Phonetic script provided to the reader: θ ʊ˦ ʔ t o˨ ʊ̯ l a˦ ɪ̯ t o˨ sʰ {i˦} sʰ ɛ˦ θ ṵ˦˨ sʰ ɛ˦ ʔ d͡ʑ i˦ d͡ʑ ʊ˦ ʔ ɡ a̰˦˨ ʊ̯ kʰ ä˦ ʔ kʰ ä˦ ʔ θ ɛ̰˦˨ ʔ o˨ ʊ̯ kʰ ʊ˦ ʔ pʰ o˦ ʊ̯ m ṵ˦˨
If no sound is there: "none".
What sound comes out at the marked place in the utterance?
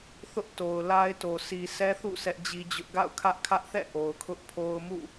i˨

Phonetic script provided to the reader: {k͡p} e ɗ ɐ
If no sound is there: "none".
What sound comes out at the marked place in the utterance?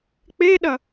k͡p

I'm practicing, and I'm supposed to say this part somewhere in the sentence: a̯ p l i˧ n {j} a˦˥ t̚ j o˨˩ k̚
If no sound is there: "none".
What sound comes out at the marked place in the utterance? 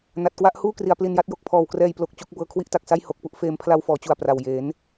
j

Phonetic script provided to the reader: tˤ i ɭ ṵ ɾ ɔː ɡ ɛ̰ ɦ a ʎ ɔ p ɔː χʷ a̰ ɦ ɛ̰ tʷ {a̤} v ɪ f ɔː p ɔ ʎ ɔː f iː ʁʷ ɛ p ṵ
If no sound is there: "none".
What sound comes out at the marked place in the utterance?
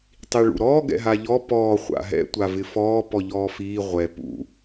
a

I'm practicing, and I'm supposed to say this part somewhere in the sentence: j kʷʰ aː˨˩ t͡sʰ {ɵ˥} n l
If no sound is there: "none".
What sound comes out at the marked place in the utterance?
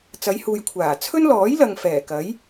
ɵ˥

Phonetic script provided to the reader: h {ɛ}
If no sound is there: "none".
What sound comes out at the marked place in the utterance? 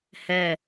ɛ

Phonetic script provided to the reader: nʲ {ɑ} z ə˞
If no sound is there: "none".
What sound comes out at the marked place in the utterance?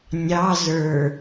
ɑ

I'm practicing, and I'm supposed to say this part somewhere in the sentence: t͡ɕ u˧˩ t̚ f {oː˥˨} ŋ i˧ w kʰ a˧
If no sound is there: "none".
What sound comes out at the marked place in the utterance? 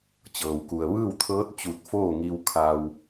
oː˥˨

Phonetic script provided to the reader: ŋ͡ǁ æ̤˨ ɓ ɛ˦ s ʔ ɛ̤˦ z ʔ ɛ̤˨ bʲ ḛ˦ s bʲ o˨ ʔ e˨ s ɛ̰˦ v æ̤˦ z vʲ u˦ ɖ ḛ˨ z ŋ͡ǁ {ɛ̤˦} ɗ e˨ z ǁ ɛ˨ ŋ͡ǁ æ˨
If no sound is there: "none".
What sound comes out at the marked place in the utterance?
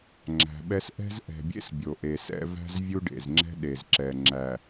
ɛ̤˦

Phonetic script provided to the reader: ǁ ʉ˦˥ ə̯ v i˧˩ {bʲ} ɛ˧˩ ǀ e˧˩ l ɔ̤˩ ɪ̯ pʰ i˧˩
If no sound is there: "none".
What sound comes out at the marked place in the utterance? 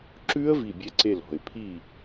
bʲ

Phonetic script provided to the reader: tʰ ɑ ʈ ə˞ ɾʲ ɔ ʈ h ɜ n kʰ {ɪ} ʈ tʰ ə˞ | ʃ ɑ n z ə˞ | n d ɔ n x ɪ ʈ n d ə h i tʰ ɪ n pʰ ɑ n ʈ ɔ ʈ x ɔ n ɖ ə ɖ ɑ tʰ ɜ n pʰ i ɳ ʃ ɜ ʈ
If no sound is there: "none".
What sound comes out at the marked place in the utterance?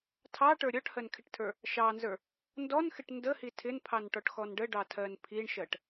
ɪ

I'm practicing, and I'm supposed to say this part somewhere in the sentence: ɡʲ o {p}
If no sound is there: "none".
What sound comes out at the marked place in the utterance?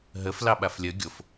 f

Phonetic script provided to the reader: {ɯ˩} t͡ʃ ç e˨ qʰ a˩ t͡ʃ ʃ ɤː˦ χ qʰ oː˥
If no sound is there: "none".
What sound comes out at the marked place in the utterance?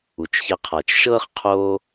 u˩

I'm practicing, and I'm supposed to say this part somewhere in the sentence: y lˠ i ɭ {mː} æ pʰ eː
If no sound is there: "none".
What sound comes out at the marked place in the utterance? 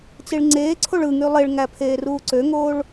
ŋ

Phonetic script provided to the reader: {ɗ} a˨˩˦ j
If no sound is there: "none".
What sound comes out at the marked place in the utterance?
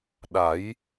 ɗ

